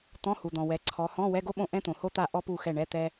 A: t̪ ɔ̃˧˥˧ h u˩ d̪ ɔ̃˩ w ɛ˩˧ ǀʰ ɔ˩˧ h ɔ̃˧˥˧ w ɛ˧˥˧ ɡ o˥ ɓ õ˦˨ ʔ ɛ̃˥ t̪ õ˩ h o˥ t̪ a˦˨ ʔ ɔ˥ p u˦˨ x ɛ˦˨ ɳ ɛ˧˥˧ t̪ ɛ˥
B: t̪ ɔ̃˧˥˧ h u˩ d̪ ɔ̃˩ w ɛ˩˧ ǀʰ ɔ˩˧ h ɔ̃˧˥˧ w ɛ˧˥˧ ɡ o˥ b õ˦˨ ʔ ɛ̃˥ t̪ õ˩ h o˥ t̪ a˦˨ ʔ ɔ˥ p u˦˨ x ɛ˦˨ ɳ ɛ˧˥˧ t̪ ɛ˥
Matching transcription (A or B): A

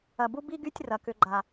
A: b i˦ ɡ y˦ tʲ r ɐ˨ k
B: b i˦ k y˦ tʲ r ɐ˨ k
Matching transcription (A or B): A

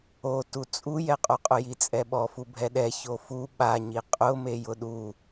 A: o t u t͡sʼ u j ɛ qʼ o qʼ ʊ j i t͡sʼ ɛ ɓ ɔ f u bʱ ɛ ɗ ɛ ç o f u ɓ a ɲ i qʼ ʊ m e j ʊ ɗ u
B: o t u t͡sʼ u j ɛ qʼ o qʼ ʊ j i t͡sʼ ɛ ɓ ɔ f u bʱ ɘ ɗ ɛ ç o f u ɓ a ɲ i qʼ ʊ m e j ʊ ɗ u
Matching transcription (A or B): A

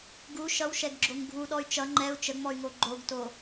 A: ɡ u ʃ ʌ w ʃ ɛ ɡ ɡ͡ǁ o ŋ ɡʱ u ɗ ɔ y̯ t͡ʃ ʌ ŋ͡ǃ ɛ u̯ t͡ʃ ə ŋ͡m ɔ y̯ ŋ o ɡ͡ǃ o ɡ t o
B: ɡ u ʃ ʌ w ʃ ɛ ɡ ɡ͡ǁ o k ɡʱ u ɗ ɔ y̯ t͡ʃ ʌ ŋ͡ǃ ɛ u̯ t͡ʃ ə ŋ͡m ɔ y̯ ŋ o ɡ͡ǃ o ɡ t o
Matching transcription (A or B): A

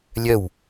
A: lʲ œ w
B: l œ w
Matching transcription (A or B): A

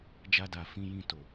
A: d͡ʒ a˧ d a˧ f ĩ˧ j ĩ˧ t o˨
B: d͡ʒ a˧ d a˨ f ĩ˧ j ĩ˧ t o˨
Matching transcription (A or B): B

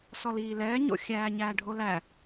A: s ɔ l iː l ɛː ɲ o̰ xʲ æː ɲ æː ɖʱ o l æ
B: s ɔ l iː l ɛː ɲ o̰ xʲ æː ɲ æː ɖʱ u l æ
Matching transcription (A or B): A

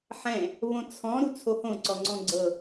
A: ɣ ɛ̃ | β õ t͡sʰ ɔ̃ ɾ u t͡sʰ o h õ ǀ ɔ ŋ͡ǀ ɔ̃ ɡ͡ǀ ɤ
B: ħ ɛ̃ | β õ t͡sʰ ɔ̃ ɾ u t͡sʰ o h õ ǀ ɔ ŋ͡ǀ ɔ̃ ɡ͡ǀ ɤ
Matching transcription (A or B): B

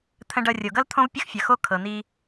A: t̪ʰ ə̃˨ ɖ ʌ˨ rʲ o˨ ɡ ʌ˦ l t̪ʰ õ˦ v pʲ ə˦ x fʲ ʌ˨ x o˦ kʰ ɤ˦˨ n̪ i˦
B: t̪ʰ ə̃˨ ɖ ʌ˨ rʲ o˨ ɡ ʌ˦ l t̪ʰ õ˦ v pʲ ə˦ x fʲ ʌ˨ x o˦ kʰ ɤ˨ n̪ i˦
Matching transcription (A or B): B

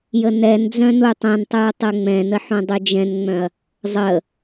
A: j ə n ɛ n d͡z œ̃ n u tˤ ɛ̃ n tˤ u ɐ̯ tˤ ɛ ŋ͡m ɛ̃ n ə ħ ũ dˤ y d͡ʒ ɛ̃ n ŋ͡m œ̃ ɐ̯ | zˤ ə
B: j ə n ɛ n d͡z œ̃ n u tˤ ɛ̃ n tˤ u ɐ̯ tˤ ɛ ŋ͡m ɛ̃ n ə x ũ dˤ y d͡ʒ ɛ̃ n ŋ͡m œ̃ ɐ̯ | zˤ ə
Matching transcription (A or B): A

